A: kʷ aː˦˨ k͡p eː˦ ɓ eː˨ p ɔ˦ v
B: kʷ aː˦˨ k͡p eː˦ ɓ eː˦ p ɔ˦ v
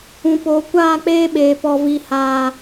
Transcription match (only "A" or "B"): A